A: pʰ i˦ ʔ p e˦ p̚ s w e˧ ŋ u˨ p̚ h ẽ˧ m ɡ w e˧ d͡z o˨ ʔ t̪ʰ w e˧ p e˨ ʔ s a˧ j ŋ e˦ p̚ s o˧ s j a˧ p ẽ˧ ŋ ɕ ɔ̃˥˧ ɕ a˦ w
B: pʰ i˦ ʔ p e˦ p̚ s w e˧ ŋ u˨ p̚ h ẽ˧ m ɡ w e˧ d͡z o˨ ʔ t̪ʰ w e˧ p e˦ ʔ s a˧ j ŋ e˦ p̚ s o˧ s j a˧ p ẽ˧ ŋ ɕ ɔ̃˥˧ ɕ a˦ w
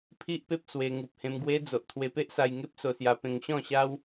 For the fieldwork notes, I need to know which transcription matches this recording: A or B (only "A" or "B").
B